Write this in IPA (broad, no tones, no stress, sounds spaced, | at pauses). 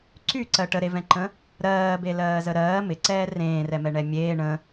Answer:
ǀ y ǀ ɜ ʈ ə ɾ e v ɛ̃ ǃ ə̃ | ɾ ɜː b e l ɜː z ə ɾ ɜː m ɪ ǀ ɛː r ẽː r ɛ m ɛ ɳ ɛ mʲ eː ɳ ə̃